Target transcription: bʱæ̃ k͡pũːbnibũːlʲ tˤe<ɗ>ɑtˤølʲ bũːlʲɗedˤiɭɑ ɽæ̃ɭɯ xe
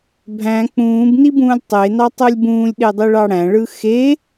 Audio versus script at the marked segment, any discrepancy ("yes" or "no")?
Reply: yes